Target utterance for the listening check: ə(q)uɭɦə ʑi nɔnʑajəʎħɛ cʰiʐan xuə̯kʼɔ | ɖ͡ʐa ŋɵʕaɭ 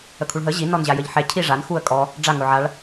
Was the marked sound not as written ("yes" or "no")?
yes